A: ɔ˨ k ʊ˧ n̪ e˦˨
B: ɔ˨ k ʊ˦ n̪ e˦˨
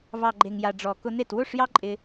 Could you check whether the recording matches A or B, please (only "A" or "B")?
A